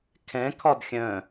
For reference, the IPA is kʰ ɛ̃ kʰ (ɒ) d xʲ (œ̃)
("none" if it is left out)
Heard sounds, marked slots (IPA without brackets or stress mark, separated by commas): ɒ, œ̃